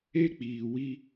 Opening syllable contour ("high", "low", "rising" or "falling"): high